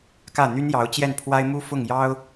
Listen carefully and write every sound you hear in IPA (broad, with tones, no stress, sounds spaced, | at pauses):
k ä˥˩ n̪ y˥ n j ɑ˧˥ ʊ̯ t͡ɕ j ɛ˥˩ n pʰ w a˥ ɪ̯ m u˥ f ʊ˥˩ ŋ j ɑ˥ ʊ̯